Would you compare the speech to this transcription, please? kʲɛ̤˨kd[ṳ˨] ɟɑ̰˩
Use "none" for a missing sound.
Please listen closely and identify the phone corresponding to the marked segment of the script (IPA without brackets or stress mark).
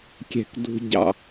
ṳ˨